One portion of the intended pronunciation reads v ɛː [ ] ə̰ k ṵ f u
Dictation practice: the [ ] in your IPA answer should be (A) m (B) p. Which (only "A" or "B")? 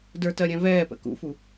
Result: B